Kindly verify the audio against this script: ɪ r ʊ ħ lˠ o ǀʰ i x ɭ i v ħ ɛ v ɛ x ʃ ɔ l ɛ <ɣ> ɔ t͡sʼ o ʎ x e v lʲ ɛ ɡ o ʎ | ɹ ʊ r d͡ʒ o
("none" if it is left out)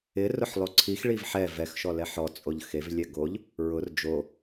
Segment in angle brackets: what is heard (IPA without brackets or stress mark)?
ħ